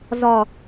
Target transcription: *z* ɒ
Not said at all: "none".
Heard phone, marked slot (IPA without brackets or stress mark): z